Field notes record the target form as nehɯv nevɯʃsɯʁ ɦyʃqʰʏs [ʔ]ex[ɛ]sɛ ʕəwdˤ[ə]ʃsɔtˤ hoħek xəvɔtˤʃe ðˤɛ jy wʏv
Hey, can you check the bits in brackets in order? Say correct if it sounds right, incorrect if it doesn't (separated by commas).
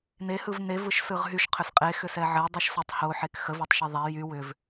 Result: incorrect, incorrect, incorrect